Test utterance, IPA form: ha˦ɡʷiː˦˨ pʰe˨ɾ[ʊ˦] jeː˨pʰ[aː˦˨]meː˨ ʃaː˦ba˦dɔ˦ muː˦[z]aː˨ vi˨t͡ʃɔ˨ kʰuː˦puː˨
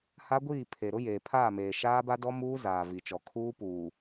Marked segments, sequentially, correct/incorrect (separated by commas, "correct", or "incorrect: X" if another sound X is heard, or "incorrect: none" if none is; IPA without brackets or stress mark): correct, correct, correct